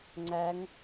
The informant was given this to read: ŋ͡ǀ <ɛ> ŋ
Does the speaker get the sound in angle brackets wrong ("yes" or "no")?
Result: yes